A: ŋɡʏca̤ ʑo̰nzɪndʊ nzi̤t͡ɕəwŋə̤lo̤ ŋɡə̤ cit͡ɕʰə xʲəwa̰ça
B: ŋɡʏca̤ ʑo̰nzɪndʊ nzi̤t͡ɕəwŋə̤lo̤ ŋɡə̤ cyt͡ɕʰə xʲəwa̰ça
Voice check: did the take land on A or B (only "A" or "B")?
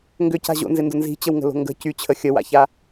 B